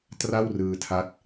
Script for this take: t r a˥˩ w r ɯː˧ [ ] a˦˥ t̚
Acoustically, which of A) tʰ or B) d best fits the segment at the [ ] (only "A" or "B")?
A